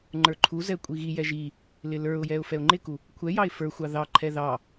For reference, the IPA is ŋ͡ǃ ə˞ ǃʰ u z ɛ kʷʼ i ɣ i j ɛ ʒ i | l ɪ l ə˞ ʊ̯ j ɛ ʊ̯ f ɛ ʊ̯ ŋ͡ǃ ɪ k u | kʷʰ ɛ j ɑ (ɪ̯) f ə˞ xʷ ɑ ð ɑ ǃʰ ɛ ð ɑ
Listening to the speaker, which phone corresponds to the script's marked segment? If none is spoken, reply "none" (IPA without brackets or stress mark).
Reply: ɪ̯